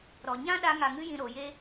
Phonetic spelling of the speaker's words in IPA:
ɾ ɔ˨ ɲ ã˦ ɗ a˧ ŋ a˨ ŋ ɨ˧ j ĩ˨ ɾ o˨ j e˦

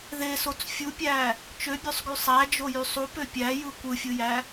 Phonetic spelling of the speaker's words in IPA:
ð e s o t͡s fʲ u pʲ æ | t͡ʃ ø bʲ ø sˤ ɡ y sˤ æ d͡ʒ o j y sˤ u p ø pʲ æ j ɯ kʷ ɯ fʲ ɯ j æ

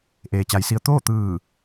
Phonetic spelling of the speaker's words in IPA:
ʔ eː˩ t͡ɕ a˩˧ j s i˧ ə̯ t̪ oː˥˨ t̪ ɯː˧˩

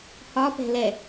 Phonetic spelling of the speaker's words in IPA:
h ɒ p ɛ̤ l ɛ

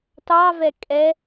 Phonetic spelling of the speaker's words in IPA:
t ɑ v ɛ kʼ ɛ

